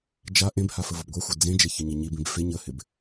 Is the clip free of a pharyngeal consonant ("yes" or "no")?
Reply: yes